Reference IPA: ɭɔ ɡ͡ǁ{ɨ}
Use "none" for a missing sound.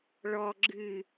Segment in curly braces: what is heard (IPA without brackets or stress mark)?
ɨ